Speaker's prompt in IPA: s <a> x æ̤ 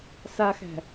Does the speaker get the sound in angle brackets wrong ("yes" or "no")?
no